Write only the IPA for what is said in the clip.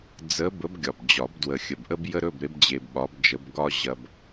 d͡z ə˧˥ b ə˧˥ b ɡʲ ɒ˨˩ b d͡ʑ ɒ˨˩˦ b d w ə˨˩ xʲ ə˨˩ b ʔ ə˥ b j ə˥ ɾ ɵ˧˥˧ b ɾ e˧˥ b d͡ʑ e˧ b ɓ ɒ˧˥ b d͡ʒ ə˧˥ b ɡ ɒ˥ ʑ ɐ˧ b

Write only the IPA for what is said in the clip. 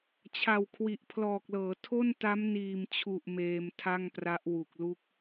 t͡ɕʰ a˨˩ w kʰ w i˨˩ ʔ pʰ l ɔː˨˩ k̚ l ɤː˩˦ tʰ o˥˩ n t a˦˥ m n iː˨˩ m t͡ɕʰ u˨˩ ʔ m eː˧ m tʰ a˥˩ ŋ p r a˦˥ ʔ w u˨˩ k̚ l u˦˥ k̚

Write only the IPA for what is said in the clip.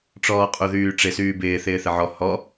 ʈ͡ʂ ɔː qʼ u ð yː ʈ͡ʂ ɪ s yː b ɪː θ ɪː θ ɪ ʕ ɔ h ɔ

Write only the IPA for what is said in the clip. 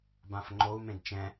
b ã f ŋ͡ǃ o u̯ m ẽ d t͡ʃ ɛ̃

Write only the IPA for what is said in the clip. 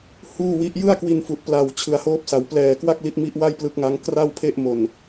h uː˥˩ w i˦˥ ʔ j ɯ˥˩ a̯ k w i˧ n f u˨˩ ʔ p l a˨˩ w t͡ɕʰ ɯ˨˩ a̯ h oː˦˥ p̚ s a˩˦ w p l ɛː˨˩ k w a˥˩ k̚ l i˦˥ t̚ m i˦˥ ʔ w a˥˩ j p l ɯ˦˥ k̚ ŋ a˦˥ ŋ k r a˥˩ w pʰ e˥˩ ʔ m o˨˩ n

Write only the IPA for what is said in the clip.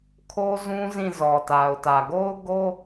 kʰ o˦ z ũ˦ z ĩ˦˨ z ɔ˨ t a˨ ʊ̯ t ä˨ ɡ o˦ ʊ̯ ɡ o˦

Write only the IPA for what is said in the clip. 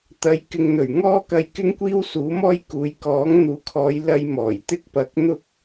t̪ ɐ˨˧ j k ɪ˨ ŋ n̪ ɵ˨˩ ɥ ŋ ɔː˥ k ɐ˧ j k ɪ˥ ŋ kʷ iː˥ w s uː˨˥ m ɔː˥ j k uː˨ j k ɔː˨˥ ŋ n̪ uː˨ kʰ ɔː˨˧ j l ɐ˧ j m ɔː˨˩ j t̪ ɪ˥ k̚ p ɐ˧ k̚ n̪ ʊ˥ k̚

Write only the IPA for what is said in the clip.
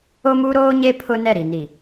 o˦ m u˦ ɾ oː˦ ɲ e˦ pʰ ʊ˦ n ɛ˦˨ ɾ i˨ n i˨

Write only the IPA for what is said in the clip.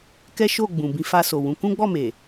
k ɛ˦ ʃ o˦˨ ɡ͡b ũ˨ b ĩ˧ f a˧ s o˨ w ũ˨˦ k ũ˦ ɡ͡b ɔ˦˨ m e˨

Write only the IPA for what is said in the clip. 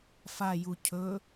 f a j u cʰ ɵ

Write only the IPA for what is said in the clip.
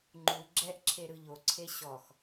ŋ͡ǃ u ɡ͡ǁ ɛ ʔ ǁʰ e ɾ ɯ ʎ o ǀʰ e ɕ ɔ x

